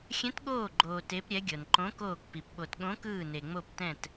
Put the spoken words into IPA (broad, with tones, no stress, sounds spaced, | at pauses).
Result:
xʲ ɛ̃˧˥ t ɠ oː˦˨ ɡ͡ǃ oː˨ t e˧˥ p ɾʲ ɛ˧˥ ɡʲ ɤ˨ n ǃ õ˧˥ k oː˦˨ k p i˨ p ɓ o˨ t ɠ õ˧˥ k ɯː˦˨ n e˨ ŋ͡m o˦˨ p t ɛ̃˦˨ t